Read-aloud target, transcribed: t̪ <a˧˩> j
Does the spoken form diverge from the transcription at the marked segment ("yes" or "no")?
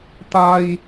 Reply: yes